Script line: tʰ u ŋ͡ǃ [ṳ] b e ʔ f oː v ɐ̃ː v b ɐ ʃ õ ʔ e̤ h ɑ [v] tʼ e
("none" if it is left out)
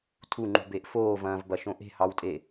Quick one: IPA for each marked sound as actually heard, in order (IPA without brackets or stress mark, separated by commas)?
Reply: ṳ, w